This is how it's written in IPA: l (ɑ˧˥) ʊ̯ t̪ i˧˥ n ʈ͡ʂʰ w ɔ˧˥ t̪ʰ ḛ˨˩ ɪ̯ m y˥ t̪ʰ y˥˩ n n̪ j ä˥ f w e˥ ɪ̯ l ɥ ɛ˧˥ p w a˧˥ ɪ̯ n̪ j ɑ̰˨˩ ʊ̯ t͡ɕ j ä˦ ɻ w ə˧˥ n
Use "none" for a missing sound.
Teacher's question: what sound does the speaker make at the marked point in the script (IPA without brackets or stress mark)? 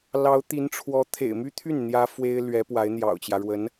ɑ˧˥